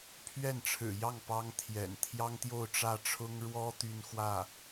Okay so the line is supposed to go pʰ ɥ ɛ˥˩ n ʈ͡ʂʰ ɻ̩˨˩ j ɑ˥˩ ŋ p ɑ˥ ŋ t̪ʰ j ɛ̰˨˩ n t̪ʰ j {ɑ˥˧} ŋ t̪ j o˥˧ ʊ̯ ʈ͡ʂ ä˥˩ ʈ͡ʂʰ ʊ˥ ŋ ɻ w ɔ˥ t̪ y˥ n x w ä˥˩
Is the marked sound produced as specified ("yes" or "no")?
no